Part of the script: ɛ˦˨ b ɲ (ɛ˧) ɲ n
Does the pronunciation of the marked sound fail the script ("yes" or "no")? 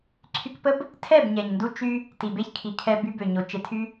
yes